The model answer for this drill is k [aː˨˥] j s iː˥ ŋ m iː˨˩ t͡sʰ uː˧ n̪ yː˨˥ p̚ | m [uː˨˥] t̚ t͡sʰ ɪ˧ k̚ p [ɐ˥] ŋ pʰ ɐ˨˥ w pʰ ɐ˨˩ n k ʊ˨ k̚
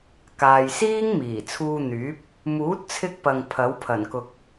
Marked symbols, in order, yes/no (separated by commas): no, yes, no